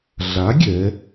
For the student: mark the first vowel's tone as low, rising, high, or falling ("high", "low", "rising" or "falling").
rising